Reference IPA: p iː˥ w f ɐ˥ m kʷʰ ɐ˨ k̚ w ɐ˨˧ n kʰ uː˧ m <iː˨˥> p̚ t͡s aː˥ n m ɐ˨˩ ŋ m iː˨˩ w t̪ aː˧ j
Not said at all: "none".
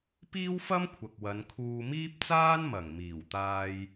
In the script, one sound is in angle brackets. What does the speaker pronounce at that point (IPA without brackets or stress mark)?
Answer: iː˥